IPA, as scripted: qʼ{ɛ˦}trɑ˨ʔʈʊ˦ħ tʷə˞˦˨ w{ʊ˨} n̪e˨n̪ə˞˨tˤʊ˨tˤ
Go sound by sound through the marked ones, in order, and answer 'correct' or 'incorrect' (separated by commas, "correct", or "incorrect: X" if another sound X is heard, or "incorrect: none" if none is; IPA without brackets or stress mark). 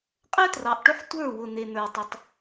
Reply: correct, correct